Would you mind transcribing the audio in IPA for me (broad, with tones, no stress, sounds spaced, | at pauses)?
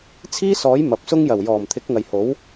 t͡sʰ iː˥ s ɔː˨˥ j m ɐ˨˥ p̚ s ʊ˥ ŋ j ɐ˨˩ w j ɔː˨˩ m t̪ʰ ɪ˨˥ k̚ ŋ ɐ˨ j h o˨˥ w